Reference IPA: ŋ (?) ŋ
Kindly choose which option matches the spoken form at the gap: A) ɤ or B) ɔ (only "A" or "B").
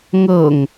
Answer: A